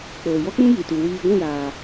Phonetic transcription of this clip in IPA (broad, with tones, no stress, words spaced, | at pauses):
k͡poː˨jɔ˦k͡pũ˦ ji˨tu˨ wiː˧ ɡʷĩ˦˨jaː˨